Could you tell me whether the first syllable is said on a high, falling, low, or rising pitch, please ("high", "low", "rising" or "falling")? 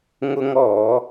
high